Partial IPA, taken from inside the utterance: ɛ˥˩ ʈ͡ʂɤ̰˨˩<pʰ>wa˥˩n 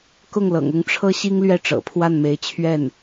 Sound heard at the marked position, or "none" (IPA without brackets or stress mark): pʰ